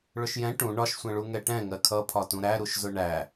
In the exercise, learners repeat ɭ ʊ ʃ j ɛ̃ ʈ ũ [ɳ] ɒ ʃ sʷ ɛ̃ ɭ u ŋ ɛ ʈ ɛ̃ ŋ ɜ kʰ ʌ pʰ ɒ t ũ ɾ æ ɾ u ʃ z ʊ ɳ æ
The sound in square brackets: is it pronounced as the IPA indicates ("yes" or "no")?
yes